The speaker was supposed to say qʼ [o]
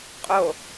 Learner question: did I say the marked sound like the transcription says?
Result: yes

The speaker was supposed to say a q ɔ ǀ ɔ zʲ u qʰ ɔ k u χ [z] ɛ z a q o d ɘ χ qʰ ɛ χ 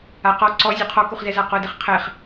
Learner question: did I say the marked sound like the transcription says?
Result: yes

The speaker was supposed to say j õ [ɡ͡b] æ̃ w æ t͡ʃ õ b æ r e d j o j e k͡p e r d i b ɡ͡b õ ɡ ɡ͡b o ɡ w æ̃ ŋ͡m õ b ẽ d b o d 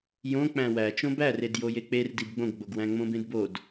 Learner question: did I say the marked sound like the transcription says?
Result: no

